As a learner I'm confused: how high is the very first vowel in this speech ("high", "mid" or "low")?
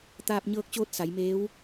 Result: low